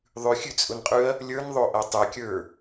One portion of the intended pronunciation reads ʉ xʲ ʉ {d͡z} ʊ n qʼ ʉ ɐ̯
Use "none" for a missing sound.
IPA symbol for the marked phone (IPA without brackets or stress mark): t͡sʼ